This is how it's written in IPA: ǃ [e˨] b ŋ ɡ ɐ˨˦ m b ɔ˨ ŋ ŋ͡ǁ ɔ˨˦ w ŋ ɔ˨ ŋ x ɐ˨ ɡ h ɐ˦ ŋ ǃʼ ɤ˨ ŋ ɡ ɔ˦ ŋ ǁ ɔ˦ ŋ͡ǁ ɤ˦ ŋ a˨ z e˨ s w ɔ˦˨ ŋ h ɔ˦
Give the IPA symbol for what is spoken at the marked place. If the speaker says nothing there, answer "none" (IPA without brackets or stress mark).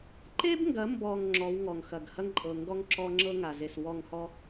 e˦